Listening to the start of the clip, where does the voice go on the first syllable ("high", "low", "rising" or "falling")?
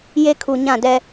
high